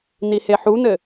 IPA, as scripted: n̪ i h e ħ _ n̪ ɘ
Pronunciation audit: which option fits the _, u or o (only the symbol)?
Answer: u